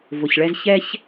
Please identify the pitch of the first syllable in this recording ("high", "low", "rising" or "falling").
low